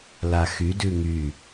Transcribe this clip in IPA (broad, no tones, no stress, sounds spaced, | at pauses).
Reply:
l a x y d ʉ ŋ y